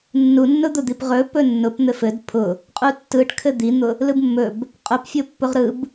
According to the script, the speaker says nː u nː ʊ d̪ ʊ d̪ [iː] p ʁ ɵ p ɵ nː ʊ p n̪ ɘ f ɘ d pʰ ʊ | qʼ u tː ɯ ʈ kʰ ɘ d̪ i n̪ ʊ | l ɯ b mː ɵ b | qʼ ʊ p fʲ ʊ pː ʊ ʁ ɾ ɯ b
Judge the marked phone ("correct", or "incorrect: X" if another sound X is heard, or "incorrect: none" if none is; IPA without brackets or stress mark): incorrect: i